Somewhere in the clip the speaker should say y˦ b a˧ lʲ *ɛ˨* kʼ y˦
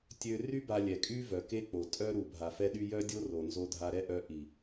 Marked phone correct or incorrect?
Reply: correct